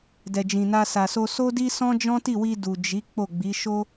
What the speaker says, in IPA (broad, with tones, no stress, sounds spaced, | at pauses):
d ɛ˨ d͡ʒ ĩ˨ n a˧ s a˨ s o˧ s o˦ d i˦ s ɔ̃˦ d͡ʒ ɔ̃˦ t i˦˨ w i˧ d u˨ d͡ʒ i˨˦ k͡p o˦˨ ɡ͡b i˨˦ ʃ o˦